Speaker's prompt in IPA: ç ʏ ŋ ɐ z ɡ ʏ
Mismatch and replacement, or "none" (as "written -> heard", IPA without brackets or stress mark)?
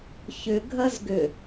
ŋ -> ɡʱ